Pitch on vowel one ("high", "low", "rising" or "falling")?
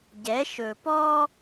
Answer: rising